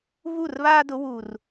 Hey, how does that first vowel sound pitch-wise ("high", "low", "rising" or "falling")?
falling